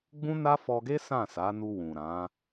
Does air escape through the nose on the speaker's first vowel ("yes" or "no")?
yes